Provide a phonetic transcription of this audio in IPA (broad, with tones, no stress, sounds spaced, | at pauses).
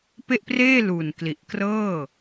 p e˥˩ ʔ p r eː˥˩ l u˨˩ n k l i˨˩ ʔ k r ɤː˥˩